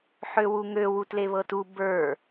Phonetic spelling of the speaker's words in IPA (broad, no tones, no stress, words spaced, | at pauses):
ħøwuŋø wutleβɤtu bə˞